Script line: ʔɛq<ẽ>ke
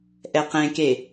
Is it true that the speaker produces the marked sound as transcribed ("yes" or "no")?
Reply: yes